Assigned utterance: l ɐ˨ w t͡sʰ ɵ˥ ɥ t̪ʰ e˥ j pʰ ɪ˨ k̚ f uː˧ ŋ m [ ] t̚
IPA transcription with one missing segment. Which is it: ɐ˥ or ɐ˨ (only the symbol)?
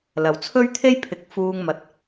ɐ˨